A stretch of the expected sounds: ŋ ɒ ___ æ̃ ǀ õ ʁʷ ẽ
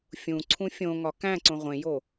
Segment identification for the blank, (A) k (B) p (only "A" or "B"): A